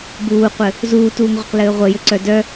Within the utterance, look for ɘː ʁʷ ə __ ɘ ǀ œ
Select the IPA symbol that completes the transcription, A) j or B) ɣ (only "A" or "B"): A